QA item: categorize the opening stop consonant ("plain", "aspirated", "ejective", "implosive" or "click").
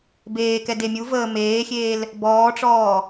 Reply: plain